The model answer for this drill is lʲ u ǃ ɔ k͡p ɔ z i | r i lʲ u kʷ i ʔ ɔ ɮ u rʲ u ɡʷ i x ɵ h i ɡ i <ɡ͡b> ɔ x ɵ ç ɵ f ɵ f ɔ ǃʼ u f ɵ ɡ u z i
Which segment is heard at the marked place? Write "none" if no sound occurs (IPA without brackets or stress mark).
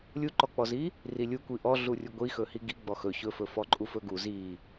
ɡ͡b